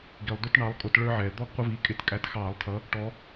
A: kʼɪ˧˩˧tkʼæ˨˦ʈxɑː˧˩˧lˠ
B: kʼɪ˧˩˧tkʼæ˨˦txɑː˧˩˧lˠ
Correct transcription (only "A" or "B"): B